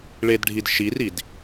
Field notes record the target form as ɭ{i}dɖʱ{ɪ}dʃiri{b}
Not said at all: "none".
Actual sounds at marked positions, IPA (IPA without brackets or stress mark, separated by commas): e, i, d